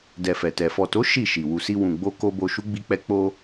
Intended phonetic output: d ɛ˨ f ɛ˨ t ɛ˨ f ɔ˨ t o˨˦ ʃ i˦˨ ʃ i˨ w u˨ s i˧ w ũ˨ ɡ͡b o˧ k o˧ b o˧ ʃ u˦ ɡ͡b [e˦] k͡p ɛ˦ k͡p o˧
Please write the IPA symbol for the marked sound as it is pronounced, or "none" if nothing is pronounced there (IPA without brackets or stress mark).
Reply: i˦